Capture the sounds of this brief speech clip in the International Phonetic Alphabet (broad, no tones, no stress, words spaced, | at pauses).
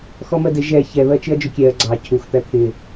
xɔmɜdɪ ʒɛ çɛ βɜt͡ʃɪɐ̯d͡ʒʊkʲɛɐ̯ ɡ͡ǀɑ cʰux t̪æt̪ʰɪ